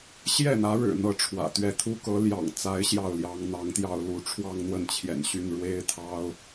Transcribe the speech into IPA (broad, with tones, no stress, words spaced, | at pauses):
ɕjɛ˥˩n̪ä˧˥ɻɻ̩˨˩ n̪ɤ˥˩ʈ͡ʂʰwä̰˨˩t̪ɥɛ˥˩ t̪ʰu˥kɤ˧˥ ljɑ̰˨˩ŋt͡sa˧˥ɪ̯ ɕjɑ˥˩ʊ̯ljɑ˧˥ŋ n̪ɑ˧˥ŋt̪jɑ˥˧ʊ̯ lu˥˧ ʈ͡ʂʰwɑ˥˧ŋ n̪wə˥˩nt͡ɕʰjɛ̰˨˩nɕy˥˩n ɻwe˥ɪ̯t̪ʰɑ˥ʊ̯